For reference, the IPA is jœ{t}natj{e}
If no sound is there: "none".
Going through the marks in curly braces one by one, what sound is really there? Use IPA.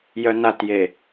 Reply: none, e

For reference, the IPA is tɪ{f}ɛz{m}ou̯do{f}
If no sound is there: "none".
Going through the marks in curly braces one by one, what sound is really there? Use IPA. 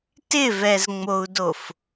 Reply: v, ŋ͡m, f

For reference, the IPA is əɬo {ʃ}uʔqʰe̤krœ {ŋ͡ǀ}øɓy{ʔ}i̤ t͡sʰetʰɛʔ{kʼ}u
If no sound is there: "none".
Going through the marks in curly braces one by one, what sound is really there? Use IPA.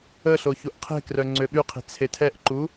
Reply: ç, ŋ͡ǀ, qʰ, ǃ

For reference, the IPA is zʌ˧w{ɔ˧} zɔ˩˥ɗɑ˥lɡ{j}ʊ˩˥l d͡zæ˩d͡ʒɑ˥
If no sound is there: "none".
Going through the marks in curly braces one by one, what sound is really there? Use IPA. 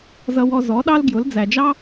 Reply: ɔ˧, j

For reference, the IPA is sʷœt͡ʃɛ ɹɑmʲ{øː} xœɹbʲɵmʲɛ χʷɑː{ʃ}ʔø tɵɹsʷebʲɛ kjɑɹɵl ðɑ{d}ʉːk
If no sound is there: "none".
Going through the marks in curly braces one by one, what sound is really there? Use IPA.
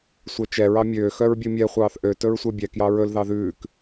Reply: øː, θ, ð

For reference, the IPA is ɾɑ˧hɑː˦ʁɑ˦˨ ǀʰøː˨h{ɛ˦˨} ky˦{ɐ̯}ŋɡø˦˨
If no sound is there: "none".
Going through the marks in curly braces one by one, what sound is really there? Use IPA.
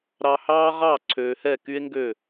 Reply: ɛ˦˨, e̯

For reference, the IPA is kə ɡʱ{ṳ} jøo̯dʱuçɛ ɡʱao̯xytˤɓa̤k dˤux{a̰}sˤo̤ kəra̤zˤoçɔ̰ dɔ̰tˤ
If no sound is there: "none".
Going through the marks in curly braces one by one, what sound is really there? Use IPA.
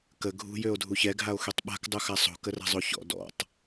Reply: ṳ, a

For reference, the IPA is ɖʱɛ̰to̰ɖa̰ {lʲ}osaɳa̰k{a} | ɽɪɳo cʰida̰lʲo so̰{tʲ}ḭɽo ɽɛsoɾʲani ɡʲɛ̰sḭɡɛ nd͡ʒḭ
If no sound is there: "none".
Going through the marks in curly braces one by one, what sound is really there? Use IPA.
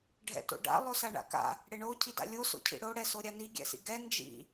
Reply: lˠ, a̰, cʰ

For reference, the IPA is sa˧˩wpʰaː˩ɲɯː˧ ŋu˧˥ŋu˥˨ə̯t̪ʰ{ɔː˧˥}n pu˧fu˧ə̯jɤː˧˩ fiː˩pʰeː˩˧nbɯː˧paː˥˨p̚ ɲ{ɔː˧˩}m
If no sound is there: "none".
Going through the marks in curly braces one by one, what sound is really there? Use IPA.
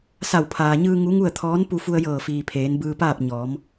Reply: ɔː˧˥, ɔː˩˧

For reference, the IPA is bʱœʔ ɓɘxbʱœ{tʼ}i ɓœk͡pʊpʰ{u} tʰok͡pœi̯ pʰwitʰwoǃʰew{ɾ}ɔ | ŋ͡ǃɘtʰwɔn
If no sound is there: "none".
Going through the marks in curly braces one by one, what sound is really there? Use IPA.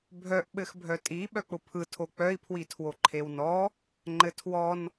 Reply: tʼ, ɯ, n

